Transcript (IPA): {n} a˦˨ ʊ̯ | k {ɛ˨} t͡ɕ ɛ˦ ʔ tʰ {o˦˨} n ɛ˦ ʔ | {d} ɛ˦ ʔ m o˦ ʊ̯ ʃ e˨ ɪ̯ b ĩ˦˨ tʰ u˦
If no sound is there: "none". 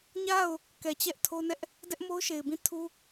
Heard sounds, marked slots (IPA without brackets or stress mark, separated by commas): ɲ, ɛ˨, o˦, d